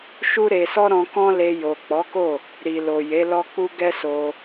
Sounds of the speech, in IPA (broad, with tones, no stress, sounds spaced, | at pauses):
ʃ u˦ ɾ e˧ s ɔ˦ ɾ ɔ̃˧ k ɔ̃˦ l e˧ j o˨ k͡p ɔ˨˦ k o˦˨ | ɾ i˨ l o˨ j e˨˦ l ɔ˧ k͡p u˧ ɡ ɛ˦ s o˧